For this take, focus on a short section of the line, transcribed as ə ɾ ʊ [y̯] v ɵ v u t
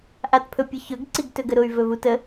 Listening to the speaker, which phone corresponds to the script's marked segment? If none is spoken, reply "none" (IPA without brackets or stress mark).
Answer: y̯